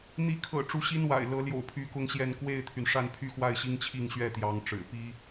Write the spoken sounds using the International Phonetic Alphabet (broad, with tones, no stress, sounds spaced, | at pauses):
n̪ i˨˦ kʰ ɤ̰˨˩ ʈ͡ʂ u˦ ɕ i˦ n w a̰˨˩ ɪ̯ l ɤ˨˦ l j o̰˨˩ ʊ̯ pʰ y˨˦ k ʊ˦ ŋ ɕ j ɛ˥˨ n k w e˥˨ ɪ̯ t̪ʰ y˩ n ʂ a˥˨ n pʰ y˥˨ x w a˥˨ ɪ̯ ɕ i˦ ŋ t͡ɕʰ i˥˨ ŋ ɕ ɥ ɛ˥˨ t̪ j ɑ˨˦ ŋ ʈ͡ʂ ɻ̩˨˩ p i˦